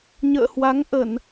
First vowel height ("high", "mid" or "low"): mid